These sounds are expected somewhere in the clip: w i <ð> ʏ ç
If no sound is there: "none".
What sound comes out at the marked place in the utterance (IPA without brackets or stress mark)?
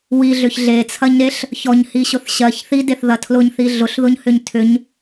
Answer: ɮ